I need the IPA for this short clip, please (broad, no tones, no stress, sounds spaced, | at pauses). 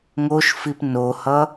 ŋ o ʃ f i p n o h ʌ